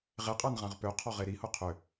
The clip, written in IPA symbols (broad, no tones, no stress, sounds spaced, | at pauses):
ʁ e qʼ a n ʁ ã ʁ p ø qʰ ɔ ʁ e ɾ i h ʊ qʰ ʏ